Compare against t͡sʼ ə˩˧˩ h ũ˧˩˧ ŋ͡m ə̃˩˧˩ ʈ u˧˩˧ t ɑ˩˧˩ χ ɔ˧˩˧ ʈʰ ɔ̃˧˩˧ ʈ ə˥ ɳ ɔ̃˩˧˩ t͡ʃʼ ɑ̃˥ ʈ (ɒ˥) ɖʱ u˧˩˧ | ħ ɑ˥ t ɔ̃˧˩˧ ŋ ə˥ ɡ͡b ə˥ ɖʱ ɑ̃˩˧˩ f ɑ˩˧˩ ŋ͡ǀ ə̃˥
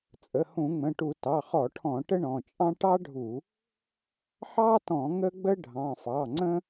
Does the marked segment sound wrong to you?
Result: yes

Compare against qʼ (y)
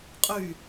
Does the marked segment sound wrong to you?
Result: no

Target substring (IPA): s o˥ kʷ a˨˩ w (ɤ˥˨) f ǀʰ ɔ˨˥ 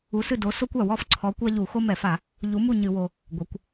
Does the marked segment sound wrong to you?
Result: yes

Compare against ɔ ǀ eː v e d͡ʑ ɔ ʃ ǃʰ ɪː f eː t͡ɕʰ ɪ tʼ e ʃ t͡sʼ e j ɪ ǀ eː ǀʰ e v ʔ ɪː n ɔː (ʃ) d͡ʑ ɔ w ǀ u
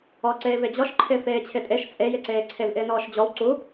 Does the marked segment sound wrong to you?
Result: no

